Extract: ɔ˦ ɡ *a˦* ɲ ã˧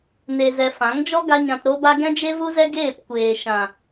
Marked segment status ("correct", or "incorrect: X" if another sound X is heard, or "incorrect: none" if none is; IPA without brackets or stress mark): correct